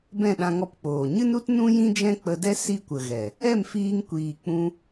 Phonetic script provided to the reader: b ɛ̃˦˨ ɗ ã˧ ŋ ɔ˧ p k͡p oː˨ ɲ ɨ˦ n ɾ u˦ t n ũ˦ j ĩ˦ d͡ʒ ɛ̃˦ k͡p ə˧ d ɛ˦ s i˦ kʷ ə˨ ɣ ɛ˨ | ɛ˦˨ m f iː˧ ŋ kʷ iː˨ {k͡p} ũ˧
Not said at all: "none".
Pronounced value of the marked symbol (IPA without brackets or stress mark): k͡p